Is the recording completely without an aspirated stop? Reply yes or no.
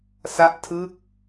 no